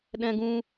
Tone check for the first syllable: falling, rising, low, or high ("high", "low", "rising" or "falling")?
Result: high